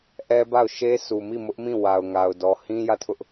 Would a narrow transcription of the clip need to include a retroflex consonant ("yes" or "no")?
no